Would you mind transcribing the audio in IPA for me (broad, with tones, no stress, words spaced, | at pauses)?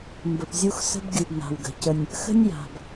mbə˨pzʲu˦x sə̤˦b ɡʲu˨bna̤˨wɡə̤˨cə˦nʲ | xə̤˦nʲja̤˨b